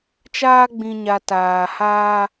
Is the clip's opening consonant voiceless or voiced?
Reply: voiceless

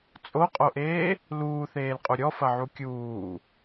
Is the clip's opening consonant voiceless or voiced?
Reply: voiceless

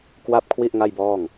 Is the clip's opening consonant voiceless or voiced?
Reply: voiceless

